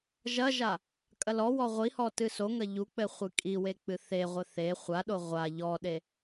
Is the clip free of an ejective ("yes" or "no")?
no